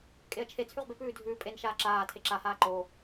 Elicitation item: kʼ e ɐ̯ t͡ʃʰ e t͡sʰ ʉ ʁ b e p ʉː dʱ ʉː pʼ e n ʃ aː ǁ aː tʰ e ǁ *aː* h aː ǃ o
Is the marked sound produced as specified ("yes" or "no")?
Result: no